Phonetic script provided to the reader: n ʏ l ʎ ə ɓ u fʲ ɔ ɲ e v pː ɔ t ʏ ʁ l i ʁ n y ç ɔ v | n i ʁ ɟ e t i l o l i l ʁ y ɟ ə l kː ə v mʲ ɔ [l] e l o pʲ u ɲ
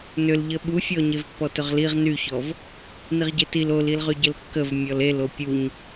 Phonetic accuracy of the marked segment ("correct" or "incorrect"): correct